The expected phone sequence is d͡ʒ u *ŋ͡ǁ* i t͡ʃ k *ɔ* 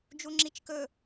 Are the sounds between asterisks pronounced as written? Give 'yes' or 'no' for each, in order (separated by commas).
yes, no